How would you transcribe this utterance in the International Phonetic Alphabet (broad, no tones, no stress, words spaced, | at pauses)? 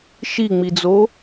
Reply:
ʃiŋ͡mid͡zo